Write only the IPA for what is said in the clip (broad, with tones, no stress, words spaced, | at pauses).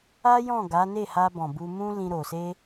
a˦ jɔ̃˦˨ɡa˨˦ ne˦˨ha˧bɔ̃˨ bu˧mũ˦ lĩ˦ɾo˧ se˦